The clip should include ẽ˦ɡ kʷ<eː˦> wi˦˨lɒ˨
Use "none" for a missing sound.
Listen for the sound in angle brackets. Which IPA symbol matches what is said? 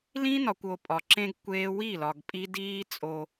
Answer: eː˦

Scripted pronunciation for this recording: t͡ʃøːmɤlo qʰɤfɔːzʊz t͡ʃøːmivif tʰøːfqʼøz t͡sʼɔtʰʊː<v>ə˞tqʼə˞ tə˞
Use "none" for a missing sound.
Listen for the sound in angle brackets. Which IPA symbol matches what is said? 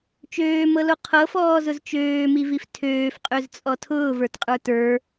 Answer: v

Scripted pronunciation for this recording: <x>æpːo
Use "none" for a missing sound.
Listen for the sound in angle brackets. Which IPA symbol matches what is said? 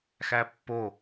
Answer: x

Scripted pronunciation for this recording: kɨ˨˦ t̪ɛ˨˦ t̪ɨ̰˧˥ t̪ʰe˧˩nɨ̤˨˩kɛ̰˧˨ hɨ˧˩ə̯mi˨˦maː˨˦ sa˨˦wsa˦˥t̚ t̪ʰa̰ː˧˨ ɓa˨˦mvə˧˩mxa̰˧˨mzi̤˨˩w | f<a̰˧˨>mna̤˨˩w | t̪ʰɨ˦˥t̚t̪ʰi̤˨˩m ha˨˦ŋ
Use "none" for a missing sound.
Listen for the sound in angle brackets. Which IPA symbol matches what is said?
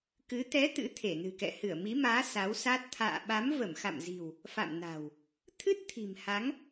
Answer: a̰˧˨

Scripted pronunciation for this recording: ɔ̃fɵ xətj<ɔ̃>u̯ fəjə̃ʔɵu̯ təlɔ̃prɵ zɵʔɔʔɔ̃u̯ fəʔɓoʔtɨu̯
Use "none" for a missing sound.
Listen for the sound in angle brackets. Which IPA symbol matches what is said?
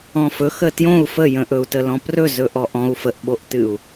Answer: õ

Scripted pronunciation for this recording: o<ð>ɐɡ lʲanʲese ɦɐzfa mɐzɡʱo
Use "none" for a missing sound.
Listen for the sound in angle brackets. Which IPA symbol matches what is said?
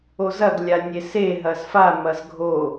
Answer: z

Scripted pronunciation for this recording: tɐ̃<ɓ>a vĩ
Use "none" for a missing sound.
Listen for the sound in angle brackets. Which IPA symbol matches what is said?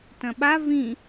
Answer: ɓ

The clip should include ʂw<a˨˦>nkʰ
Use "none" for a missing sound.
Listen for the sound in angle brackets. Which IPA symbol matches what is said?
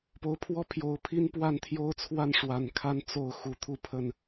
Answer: a˨˩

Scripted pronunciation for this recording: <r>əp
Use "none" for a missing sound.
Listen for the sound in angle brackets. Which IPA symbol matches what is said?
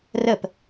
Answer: r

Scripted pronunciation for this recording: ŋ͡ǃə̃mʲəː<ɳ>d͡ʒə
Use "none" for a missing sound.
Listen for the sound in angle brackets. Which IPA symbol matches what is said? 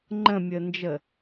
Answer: n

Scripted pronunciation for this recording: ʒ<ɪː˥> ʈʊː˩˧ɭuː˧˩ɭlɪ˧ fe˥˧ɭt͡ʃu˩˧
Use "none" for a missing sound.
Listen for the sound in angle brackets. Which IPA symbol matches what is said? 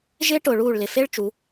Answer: ɪː˥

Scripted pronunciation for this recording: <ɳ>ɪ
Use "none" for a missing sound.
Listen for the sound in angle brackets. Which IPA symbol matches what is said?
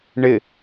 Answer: ɳ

